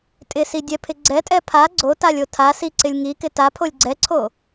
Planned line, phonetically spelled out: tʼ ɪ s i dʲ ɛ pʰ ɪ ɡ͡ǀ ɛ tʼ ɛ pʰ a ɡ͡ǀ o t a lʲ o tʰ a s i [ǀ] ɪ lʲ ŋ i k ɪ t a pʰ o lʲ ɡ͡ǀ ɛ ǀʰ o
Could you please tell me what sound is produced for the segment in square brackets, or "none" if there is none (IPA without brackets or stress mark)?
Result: ǀ